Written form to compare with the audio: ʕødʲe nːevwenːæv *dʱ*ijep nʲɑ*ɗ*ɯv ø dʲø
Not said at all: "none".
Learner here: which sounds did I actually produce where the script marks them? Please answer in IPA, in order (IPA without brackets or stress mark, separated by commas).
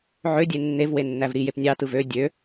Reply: ɾ, t